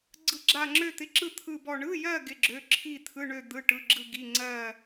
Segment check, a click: present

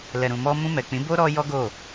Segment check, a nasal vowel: present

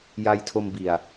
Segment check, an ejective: absent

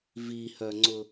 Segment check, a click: present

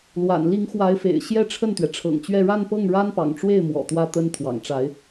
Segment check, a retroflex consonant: present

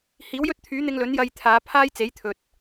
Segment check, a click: absent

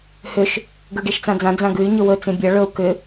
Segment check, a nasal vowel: present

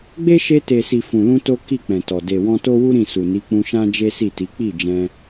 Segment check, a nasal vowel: present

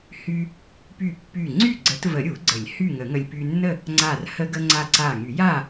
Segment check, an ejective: absent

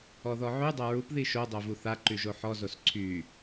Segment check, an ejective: absent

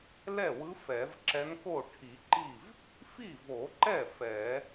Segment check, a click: present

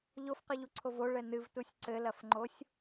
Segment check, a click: present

